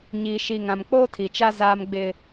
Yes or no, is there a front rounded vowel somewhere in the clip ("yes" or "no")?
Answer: no